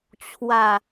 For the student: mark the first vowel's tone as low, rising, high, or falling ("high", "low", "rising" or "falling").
low